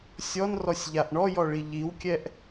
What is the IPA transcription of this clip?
sʲ ɔ n r ɔ sʲ ʎ a ʔ ɳ ɔ j ɔ ɭ i ʎ i w kʲ ɛ ʔ

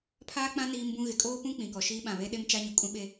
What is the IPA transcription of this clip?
pʰ aː˦ k͡p ã˦ n iː˦ m b ũ˦ ɣ ɪ˨ kʼ oː˦ p ũ˦ k͡p ĩ˨ k ɔ˨ ʃ iː˦ ɓ ã˨ β e˦ ɗ e˦ m t͡ʃ a˦ ɲ u˨ kʼ ũ˦ ɓ e˦

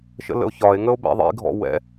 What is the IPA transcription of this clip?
ʃ ə̰ l ə̰ o̯ ç ɒ e̯ ŋ ə o̯ b ɛ̰ ðˤ ḭ ɡʱ ɔ̰ w ɛ̰

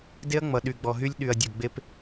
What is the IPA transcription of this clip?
d e˦ ɐ̯ ŋ͡m ʌ˨ ɗ y˨ ɡ͡b ɔ˨ ɦ y˦ lʲ ɗ y˨ ɐ̯ dʲ ʊ˨ ɡ͡b e˦ p

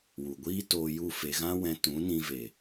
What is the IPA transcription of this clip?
w u˨ ɡʷ iː˦ t oː˧ j u˦˨ f e˧ ɣ ã˦ w ɛ̃˧ t ũ˨˦ n ĩ˧ v e˨

